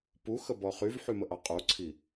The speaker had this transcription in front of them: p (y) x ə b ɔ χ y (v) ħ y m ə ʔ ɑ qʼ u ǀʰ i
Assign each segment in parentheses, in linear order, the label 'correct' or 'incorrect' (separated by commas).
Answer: incorrect, correct